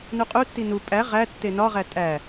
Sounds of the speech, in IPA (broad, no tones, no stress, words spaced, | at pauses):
nuqʼutːi nu pʼæ ʁæ tːenɒʁæ tʼæ